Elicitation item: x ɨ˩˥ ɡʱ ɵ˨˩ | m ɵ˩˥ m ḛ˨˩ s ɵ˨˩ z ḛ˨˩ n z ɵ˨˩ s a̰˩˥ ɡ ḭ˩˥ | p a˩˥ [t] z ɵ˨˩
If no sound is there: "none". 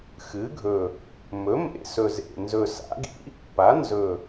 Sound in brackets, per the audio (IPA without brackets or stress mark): n